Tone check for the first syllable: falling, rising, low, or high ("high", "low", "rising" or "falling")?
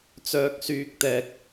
high